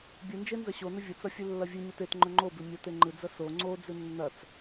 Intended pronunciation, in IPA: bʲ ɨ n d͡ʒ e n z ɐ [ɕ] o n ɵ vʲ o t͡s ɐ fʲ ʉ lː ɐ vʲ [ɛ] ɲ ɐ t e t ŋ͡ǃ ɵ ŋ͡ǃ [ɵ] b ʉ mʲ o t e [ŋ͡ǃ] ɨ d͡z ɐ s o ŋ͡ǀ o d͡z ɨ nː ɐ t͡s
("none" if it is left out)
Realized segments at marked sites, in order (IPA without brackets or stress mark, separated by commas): ɕ, ɨ, o, ŋ͡ǃ